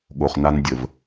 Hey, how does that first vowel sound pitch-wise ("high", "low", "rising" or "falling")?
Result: low